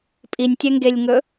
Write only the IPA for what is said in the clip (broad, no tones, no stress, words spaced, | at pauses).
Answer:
pʼinʲtʲɛŋɡelʲŋɵ